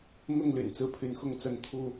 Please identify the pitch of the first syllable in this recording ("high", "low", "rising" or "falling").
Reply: falling